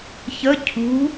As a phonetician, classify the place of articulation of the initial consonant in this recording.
palatal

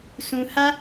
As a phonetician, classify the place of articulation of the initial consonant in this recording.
alveolar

